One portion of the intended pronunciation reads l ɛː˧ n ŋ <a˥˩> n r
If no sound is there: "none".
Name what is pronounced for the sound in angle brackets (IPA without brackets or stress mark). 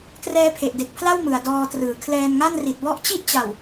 a˥˩